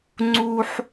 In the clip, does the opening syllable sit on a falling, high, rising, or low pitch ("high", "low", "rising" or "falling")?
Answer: high